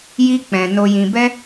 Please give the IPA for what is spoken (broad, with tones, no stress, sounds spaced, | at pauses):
j i˦ k͡p ɛ̃˧ n o˧ j ĩ˧ b ɛ˦